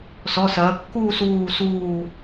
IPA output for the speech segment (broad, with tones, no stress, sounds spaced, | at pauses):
s ɔ˩˧˩ s ɐː˩˧ kː uː˦˨ s uː˦˨ s uː˦˨